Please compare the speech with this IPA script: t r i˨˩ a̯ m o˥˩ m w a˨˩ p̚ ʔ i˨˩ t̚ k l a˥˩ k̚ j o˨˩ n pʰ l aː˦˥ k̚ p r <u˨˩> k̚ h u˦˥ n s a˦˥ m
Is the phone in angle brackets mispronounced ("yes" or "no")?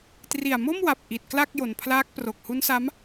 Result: yes